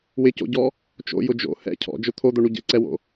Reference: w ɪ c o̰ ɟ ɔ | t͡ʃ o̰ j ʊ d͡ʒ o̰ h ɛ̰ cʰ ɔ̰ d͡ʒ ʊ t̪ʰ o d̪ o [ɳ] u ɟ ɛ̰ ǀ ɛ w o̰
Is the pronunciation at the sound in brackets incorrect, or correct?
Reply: correct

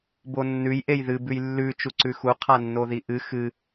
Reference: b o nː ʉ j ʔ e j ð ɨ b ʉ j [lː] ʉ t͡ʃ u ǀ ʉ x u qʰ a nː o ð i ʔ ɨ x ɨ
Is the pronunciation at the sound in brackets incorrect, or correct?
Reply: correct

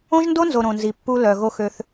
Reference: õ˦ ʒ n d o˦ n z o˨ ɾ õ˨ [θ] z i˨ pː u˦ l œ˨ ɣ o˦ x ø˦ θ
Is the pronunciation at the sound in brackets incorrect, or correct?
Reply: incorrect: n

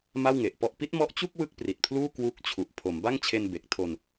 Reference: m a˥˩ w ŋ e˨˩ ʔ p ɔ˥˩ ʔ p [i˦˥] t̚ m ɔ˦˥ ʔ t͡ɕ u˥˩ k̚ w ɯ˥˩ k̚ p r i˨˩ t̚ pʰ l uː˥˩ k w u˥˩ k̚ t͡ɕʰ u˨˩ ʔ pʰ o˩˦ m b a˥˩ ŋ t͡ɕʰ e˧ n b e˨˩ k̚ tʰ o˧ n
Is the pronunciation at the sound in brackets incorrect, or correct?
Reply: correct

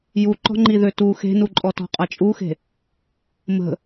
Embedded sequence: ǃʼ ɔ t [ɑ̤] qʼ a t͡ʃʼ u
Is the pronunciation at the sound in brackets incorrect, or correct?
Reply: incorrect: ɔ̤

